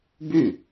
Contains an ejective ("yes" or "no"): no